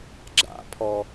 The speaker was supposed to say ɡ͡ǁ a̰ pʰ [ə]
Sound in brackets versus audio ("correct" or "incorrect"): incorrect